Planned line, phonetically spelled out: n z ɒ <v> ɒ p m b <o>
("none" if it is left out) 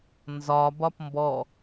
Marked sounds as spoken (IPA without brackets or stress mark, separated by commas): b, ɔ